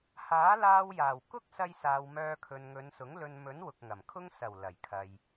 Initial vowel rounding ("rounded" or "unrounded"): unrounded